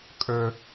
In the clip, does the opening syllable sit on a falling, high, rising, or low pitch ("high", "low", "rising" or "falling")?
high